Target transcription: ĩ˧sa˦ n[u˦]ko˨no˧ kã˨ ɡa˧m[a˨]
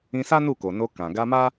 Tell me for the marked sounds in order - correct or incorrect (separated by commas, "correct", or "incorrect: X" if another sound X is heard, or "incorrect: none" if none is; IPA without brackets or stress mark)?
incorrect: u˦˨, incorrect: a˦